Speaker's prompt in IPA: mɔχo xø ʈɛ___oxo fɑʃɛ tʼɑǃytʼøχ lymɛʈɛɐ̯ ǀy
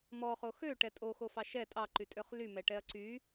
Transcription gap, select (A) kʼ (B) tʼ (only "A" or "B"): B